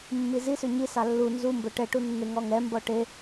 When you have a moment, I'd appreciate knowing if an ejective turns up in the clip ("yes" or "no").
no